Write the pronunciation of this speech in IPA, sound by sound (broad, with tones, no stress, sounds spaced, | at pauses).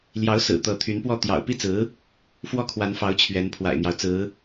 l j ɑ˧˥ ʊ̯ s ɹ̩˨˩ t̪ ɤ˥˩ t̪ʰ y˧˥ n p w ɔ˥˩ t̪ j ɑ̰˨˩ ʊ̯ p i˥˩ t͡s ɹ̩˧˥ | f w ɔ˥˩ kʰ w a˧˥ n f ɑ˧˥ ʊ̯ t͡ɕʰ ɥ ɛ˧˥ n pʰ w a̰˨˩ ɪ̯ n̪ j ɑ˦ ʊ̯ t͡s ɹ̩˧˥